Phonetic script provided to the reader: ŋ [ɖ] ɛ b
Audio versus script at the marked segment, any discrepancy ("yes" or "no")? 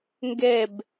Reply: yes